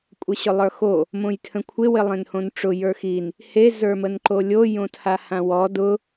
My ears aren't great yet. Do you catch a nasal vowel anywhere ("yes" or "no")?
yes